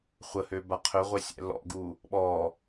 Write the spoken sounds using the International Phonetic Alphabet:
χʷ ə h ø b a qʰ ø ʁʷ e sʲ ɛ̰ l ɔ̰ ɡ u | ɓ ɔ

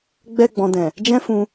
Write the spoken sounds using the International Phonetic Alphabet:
ɡ͡b ɛ˧ ɡ͡b ɔ̃˨ d ɛ̃˨ | d͡ʒ ɛ̃˦ f ũ˧

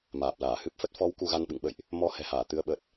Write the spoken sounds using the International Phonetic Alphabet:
m aː˨˩ p̚ l aː˧˩ h ɨ˦˥ p̚ f ə˦˥ t̚ f ɔ˨˦ w k u˧ ɣ a˧ n ɓ ɨ̰˧˨ ŋ ɓ ə̰˧˨ j ʔ | m ɔ˧ h ɛ̤˨˩ h aː˧˩ t̪ ɨ˨˦ ə̯ ɓ ə˨˩ t̚

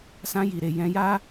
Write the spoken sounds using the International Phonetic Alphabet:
s ã˧ j i˨ ɾ e˨ j ɛ̃˧ j a˦

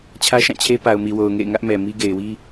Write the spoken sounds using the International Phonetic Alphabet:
t͡ɕʰ ä˦ ʃ ã˦˨ t͡ɕʰ e˦ p a˨ ʊ̯ m i˨ w o˨ ʊ̯ ŋ ḛ˦˨ ɪ̯ ŋ ä˦ ʔ m ɛ˨ m i˦ ɡ e˨ ɪ̯ w i˦

